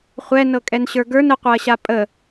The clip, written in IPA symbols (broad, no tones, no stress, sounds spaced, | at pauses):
χʷ ɛ n ɤ kʼ ɛ n ɕ ə˞ ɡ ə˞ n ə qʷ ɤ ɐ̯ ɕ a pʼ ə